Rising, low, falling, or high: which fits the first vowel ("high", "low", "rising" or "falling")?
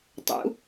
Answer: rising